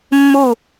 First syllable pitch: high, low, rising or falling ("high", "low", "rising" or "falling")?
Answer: falling